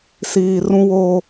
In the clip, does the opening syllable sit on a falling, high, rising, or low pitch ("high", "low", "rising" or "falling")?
low